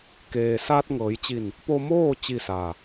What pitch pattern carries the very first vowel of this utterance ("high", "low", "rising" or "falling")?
low